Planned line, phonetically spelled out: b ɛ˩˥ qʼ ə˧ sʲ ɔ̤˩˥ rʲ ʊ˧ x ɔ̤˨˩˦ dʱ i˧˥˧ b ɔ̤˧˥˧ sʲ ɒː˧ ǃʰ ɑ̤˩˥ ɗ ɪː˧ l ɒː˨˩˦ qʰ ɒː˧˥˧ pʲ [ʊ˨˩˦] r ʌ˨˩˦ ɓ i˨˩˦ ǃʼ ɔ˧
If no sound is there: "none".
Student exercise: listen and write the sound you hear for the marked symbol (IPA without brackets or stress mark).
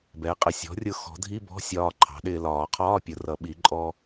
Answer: ʊ˨˩˦